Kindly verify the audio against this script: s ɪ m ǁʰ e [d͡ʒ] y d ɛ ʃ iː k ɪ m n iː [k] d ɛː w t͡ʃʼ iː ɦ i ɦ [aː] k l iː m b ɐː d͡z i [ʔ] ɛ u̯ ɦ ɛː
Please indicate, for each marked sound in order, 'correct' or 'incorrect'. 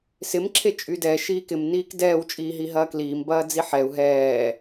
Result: incorrect, correct, incorrect, incorrect

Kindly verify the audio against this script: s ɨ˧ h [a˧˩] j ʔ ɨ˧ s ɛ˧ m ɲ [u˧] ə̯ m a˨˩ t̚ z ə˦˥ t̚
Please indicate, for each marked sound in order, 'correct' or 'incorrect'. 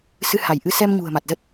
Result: correct, incorrect

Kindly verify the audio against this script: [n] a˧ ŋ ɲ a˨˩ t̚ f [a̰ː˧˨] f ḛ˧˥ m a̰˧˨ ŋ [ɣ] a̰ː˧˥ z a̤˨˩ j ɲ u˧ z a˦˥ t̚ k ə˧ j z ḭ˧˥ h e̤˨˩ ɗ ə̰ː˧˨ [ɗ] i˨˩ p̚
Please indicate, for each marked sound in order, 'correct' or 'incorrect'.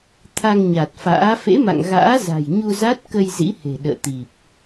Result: incorrect, incorrect, correct, incorrect

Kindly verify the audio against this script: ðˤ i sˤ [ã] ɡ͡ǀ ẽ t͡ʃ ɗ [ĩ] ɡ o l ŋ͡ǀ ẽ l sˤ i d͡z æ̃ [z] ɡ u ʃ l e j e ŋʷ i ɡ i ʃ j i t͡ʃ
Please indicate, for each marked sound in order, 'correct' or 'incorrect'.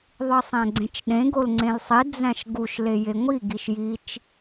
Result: incorrect, incorrect, incorrect

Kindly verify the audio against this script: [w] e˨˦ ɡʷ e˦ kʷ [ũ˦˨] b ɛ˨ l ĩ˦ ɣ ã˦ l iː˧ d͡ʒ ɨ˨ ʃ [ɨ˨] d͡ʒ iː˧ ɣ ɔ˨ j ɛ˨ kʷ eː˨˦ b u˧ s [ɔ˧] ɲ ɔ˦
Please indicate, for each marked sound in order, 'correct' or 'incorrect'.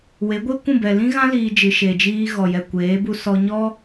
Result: correct, correct, incorrect, correct

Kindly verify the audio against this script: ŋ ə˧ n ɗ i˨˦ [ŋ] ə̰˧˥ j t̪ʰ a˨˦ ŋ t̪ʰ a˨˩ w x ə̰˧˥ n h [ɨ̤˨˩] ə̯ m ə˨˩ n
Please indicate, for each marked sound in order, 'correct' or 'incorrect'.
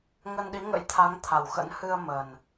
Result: correct, incorrect

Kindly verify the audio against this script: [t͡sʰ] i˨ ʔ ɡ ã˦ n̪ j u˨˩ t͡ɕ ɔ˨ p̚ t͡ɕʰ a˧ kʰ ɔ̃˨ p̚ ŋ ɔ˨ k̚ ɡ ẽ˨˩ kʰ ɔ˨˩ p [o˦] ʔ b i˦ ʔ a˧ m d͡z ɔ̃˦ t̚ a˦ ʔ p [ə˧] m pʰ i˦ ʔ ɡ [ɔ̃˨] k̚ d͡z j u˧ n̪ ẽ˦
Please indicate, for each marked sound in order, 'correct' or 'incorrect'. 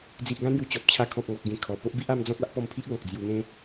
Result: incorrect, correct, incorrect, correct

